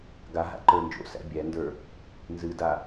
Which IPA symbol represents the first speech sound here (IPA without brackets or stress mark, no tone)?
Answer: ɡ